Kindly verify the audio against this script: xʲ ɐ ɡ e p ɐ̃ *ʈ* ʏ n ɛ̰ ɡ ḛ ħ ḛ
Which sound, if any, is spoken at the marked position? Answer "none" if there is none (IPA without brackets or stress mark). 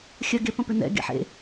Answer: p